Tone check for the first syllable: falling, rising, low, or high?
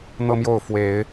high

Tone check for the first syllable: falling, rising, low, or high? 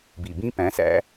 low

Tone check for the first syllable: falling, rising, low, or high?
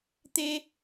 high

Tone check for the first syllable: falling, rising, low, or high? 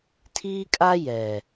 high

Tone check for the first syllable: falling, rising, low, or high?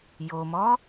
low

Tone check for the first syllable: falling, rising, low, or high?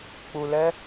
low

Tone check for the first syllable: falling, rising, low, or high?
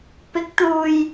rising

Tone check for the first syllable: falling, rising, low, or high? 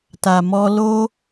low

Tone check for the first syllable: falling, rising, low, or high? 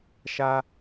low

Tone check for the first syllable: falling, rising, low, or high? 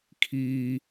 low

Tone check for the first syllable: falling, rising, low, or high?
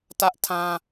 high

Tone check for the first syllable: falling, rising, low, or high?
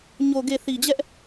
low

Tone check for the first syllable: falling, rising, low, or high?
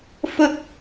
high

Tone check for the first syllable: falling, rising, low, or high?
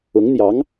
rising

